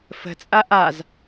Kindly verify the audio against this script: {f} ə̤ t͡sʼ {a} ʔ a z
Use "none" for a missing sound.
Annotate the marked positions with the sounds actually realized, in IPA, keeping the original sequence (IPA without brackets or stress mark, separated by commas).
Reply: f, a